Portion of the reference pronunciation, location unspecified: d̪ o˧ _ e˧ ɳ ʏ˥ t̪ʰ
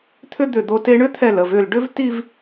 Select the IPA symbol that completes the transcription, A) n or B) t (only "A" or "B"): B